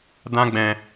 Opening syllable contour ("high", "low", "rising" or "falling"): high